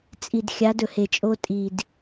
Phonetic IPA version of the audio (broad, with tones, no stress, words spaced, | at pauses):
t͡sʼi˨d xʲa˨˦d ɵ˨he˨t͡ʃʼo˦ tʼi˨d